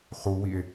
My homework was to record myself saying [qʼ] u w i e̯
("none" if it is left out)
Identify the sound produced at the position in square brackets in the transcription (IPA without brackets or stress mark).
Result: χ